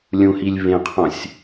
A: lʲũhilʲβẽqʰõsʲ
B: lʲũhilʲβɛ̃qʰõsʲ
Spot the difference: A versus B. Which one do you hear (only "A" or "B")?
A